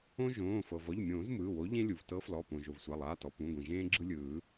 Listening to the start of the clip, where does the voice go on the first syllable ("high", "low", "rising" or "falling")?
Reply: high